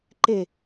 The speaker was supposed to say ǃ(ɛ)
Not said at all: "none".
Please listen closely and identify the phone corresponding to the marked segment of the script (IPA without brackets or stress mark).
e